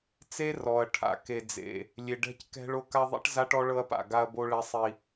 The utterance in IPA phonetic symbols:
t͡s e˦ r ɔ˨ ɐ̯ ʈʰ a̰˨ k e˨ d͡z ḛ˨ | lʲ e˨ ɖ ɛ̤˦ c k ɛ̤˦ ɭ o˦ k a˦ ðˤ ḭ˦ ʈ z a˦ ʈ ɔ˦ ɭ ɤ˦ ɐ̯ p a̰˨ ɡ a˦ ɐ̯ b o˦ ɭ ɛ˦ sˤ i˦

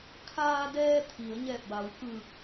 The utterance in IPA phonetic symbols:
kʰ aː˧ d ɛː˧ t̪ʰ i˩˧ ə̯ ɲ ɛː˧˩ p̚ b a˩˧ w k ɯː˧˩ k̚

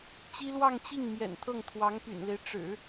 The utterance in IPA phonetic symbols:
t͡ɕ i˥ l w ɑ˥˧ ŋ t͡ɕ i˥˩ ŋ m j ɛ̰˨˩ n t̪ʰ ɤ˥˩ ŋ t̪ʰ w ɑ˧˥ ŋ p y̰˨˩ n l e˦ ɪ̯ ʈ͡ʂ ɻ̩˨˩˦

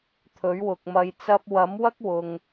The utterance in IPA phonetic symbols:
t̪ʰ ɵ˨˥ ɥ w ʊ˨ k̚ m ɐ˧ j t͡s ɐ˧ p̚ w ɐ˨˥ m w ɐ˥ k̚ w ʊ˨ ŋ

